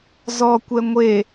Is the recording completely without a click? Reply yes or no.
yes